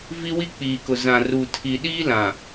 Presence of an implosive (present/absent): present